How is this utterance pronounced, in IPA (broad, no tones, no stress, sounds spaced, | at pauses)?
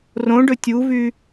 r õ ɖ ɵ tʲ u v y